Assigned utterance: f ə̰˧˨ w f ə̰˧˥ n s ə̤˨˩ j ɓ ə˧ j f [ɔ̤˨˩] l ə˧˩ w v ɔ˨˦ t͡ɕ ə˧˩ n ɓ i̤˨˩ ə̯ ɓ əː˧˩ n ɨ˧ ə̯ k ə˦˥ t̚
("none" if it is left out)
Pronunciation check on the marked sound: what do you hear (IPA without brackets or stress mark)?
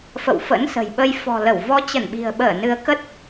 ɔ̤˨˩